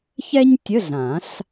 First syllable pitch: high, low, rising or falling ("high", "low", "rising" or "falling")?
high